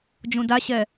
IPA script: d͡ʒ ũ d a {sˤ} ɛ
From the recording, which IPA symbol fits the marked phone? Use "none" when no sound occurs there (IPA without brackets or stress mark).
ɕ